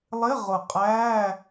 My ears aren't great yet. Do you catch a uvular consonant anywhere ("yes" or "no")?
yes